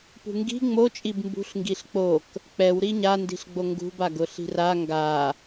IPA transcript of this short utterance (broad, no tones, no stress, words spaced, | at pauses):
pṳŋɡi̤ ŋ͡mo t͡ʃʼibmbṳɬŋɡiɬ k͡pok | k͡pɛw ɾiɲandi̤ɬɡ͡bo ŋɡṳbaɡʊ ɬi̤ra ŋɡa